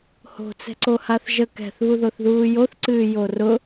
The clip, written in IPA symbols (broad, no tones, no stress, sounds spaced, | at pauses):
h o̤ t͡s ɛ̤ ǀ o h a θ ʒ ə k ɛ̤ θ β u ð o θ ð uː j o θ ǀ ɨː j o r ʊ